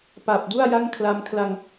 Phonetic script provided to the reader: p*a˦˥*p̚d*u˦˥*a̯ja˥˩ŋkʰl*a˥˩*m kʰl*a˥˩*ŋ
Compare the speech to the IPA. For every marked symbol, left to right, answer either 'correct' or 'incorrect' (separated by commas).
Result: incorrect, incorrect, incorrect, incorrect